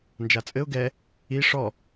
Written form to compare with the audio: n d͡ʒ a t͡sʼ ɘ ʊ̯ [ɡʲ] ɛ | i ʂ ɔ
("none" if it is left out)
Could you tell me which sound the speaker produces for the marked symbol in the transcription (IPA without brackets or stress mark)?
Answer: ɡ